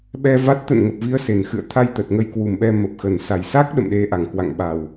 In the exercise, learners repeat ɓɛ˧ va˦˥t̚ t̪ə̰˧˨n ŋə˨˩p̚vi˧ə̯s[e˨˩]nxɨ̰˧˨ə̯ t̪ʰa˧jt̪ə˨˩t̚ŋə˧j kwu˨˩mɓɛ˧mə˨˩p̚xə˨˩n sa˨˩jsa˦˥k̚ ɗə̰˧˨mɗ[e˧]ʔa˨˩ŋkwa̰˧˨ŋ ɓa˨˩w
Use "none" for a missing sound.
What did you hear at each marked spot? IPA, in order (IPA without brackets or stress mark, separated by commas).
e˨˩, e˧